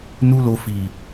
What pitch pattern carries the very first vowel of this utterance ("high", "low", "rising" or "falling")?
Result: high